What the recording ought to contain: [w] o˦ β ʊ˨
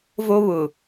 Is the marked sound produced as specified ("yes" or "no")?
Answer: no